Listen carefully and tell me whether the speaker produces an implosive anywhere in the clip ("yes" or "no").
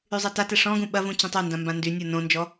yes